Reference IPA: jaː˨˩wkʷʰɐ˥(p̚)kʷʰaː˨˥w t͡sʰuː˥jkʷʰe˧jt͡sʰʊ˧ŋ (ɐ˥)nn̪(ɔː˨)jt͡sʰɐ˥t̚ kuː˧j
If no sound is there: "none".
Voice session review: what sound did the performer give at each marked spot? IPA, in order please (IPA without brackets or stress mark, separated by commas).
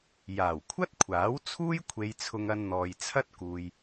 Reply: t̚, ɐ˧, ɔː˨